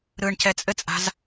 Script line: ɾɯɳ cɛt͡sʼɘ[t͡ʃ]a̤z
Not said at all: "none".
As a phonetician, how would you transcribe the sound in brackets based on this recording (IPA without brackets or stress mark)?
t͡sʼ